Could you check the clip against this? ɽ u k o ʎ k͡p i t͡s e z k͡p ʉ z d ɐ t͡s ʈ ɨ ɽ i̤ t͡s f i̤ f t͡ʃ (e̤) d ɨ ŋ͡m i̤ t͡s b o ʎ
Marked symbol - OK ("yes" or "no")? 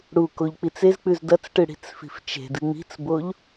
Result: yes